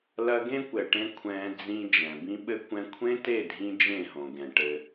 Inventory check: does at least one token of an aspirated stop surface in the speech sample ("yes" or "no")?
yes